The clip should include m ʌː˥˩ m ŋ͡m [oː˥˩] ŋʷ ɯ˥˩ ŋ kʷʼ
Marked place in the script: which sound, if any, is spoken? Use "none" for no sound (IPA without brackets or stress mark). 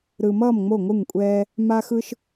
o˥˩